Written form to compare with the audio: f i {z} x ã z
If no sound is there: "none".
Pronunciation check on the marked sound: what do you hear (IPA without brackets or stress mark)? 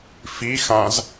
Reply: none